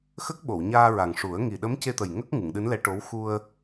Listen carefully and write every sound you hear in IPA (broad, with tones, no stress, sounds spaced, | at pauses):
x ə˦˥ k̚ ɓ o˨˩˨ w ɲ aː˧ ɹ a˨˩ ŋ ʂ u˨˩˦ ə̯ ŋ i˨˩ ɗ ə˧˥ m c e˧ t̪ ə˨˩ j ŋ ə˦˥ k̚ ŋ ɨ˨˩˨ ŋ ɗ ɨ˧˥ n l ɛ˧˥ ʈ o˧˥ w x u˧ ə̯